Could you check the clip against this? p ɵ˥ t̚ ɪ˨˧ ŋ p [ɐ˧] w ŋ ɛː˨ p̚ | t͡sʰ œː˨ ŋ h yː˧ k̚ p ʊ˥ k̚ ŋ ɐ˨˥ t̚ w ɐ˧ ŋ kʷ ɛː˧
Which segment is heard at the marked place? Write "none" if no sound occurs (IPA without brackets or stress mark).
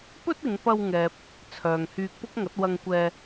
ɐ˧